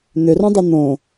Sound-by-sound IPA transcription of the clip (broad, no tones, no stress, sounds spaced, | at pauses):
n̪ ʏ r õ dˤ u n̪ õ